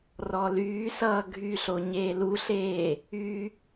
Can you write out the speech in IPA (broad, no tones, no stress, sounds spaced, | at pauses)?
r ɔ l yː s ʌː ɡʱ y ɬ o ɲ eː l u ɬ eː | y